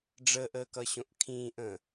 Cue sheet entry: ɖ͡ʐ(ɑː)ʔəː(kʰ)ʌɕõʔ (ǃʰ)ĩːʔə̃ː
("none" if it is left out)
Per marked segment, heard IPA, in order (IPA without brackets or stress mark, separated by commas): əː, k, kʰ